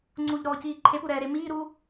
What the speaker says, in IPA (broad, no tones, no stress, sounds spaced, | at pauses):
ŋ͡ǀ u ʎ ɾ ɔː c iː ǃʰ e p u ɾ ɛː ɾ e m iː ɾ uː